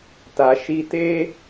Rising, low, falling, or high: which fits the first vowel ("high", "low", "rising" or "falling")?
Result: low